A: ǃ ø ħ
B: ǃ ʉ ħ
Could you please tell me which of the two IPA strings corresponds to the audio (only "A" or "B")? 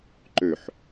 A